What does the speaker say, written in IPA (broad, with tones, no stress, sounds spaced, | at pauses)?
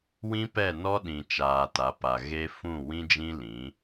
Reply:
w ĩ˦ p ɛ˦˨ n ɔ˦ ɗ ĩ˨ t͡ʃ aː˨ t a˨˦ p a˨ ɣ e˦ f ũ˦˨ w ĩ˦ d͡ʒ ĩ˦ l ĩ˨˦